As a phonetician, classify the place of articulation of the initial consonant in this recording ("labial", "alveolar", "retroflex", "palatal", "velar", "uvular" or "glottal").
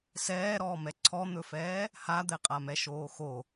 alveolar